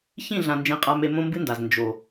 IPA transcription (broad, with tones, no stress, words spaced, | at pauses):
çĩ˦˨ɮã˨ nd͡ʒẽ˧qʼa˧ me˧mõ˦mbɨ˦nda˨z nd͡ʒo˨